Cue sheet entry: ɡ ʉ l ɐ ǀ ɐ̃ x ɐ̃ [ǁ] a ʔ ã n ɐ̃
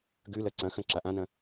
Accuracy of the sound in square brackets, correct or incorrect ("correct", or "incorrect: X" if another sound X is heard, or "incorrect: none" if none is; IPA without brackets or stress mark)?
correct